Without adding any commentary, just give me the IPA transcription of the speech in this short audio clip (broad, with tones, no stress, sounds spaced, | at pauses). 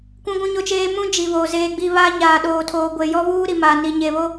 kʷ ũ˦ ɡʷ ũ˦ ɲ o˦ t͡ʃ eː˦ m ũ˦ d͡ʒ i˨ β o˨ z eː˦ ɡ͡b i˦ β a˦ ɲ aː˨ ɗ oː˨ tʰ oː˨ ɡʷ e˨ j ɔ˦ β uː˦ ɾ i˨ m a˨ n i˨ ɲ e˨ β o˦